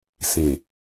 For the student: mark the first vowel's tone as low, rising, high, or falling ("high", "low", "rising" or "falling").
low